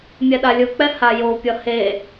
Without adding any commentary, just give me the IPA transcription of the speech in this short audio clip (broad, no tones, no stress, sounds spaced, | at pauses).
mʲ ɛ ɗ a lʲ ɯ k͡p ɛ h a j o pʲ ʌ h e